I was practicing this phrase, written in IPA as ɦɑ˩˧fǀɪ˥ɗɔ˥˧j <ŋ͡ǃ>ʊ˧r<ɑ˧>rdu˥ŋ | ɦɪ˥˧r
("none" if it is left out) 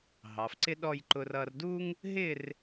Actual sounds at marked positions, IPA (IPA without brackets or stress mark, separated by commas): ǃ, ʌ˧